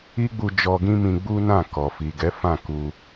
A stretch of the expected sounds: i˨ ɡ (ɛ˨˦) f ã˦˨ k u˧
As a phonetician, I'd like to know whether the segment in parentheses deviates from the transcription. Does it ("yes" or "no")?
no